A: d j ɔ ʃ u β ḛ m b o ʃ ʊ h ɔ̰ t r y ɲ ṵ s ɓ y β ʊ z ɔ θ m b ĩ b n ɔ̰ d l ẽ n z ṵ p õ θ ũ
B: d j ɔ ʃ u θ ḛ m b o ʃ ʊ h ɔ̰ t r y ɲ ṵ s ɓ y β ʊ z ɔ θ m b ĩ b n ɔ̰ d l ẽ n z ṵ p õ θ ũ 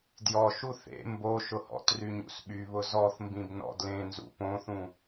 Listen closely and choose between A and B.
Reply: B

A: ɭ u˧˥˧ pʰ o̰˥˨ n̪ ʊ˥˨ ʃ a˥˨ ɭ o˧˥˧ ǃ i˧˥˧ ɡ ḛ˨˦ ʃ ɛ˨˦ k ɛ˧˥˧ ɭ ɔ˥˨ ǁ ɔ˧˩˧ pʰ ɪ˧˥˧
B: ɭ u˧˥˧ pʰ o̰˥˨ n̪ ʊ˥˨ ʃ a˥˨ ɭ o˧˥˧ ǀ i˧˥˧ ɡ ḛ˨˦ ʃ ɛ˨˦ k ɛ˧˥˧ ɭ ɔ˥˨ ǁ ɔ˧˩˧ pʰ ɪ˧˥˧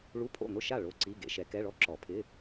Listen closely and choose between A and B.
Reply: B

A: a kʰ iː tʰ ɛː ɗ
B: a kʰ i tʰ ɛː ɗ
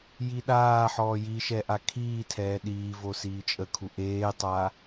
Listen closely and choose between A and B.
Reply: A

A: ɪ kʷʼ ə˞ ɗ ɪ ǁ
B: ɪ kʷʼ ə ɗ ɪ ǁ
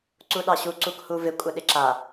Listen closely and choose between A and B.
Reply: B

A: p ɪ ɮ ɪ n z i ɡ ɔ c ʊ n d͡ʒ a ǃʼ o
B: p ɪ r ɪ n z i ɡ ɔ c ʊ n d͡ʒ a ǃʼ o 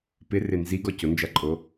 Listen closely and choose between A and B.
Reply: B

